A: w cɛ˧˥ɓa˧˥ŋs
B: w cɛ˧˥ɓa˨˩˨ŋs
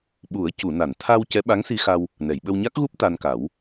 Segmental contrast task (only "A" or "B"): A